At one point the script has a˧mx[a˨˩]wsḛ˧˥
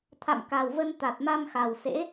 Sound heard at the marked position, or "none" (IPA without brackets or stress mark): a˨˩